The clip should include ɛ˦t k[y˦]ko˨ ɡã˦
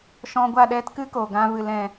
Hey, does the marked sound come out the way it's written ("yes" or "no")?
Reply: no